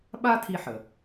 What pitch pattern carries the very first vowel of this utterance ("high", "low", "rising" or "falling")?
high